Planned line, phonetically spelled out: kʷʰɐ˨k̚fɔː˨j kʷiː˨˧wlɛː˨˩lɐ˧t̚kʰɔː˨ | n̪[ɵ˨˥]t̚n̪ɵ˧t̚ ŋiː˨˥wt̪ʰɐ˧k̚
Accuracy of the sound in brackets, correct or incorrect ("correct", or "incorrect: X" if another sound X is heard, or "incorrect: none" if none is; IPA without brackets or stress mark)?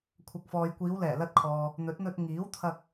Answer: correct